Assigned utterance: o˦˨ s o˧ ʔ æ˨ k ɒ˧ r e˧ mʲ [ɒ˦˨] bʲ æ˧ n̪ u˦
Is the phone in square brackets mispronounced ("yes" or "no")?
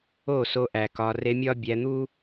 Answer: yes